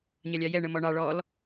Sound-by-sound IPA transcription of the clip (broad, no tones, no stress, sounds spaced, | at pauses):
ɲ ɑ lʲ ɑ j ɛ ɳ ə m ɔ ɳ ɑ ɭ ɔ l